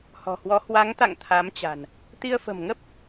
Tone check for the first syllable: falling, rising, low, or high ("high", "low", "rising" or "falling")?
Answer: low